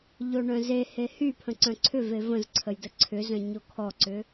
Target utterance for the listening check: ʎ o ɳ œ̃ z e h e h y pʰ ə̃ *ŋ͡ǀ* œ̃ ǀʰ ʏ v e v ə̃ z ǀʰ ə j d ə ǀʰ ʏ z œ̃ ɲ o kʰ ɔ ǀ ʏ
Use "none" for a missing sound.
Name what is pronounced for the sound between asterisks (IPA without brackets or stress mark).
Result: ǀ